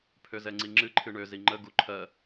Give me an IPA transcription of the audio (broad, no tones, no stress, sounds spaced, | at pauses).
pʰ ø z ɛ ŋ͡ǀ i ŋ͡ǁ ɨ ǃʰ ɨ ɳ ø z i ŋ͡ǃ ə ɡ u ǃʰ ɜ